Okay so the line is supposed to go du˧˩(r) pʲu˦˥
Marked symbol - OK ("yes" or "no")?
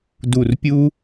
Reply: yes